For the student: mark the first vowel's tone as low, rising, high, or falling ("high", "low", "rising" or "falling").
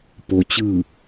low